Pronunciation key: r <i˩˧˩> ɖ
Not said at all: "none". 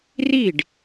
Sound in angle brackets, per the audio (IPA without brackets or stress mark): i˥˩